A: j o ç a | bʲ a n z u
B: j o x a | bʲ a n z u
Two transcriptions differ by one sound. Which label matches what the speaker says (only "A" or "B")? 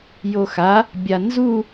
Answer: B